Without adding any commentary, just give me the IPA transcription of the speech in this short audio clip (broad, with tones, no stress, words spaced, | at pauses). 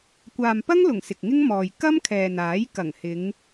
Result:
kʷaː˨mpɐ˥ŋlʊ˨˩ŋ sɪ˨k̚ŋɪ˥ŋmɔː˨j kɐ˥mkʰɛː˨naː˨˥j kɐ˨˩ŋhɪ˨˧ŋ